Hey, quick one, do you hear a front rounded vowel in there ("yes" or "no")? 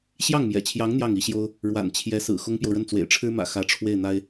no